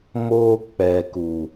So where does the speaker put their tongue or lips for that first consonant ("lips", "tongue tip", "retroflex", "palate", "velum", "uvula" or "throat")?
lips